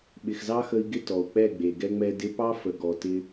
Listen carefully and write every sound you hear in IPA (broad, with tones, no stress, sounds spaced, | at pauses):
ɓ ɪ˨ x z ɑ˦ x ə˧ i̯ ɡ ɪ˦ t ɔ˨ u̯ k͡p ɛ˦˨ ɡ͡b e˨ ɡ ɛ˦ ŋ͡m ɛ˧ d ɪ˧ p ɑ˦ f ə˨ ɡ ɔ˨ t ɪ˦